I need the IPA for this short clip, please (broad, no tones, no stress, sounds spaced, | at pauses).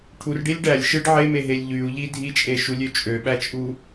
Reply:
ʈʰ u r ɖ i lʲ ɖ æ lʲ ʃ ɯ ɖ ʕ e m e ɦ e lʲ ʎ y u̯ ʎ i dʱ i t͡ʃʼ e ʃ u lʲ ø t͡ʃʼ ø ɓ æ t͡ʃʼ u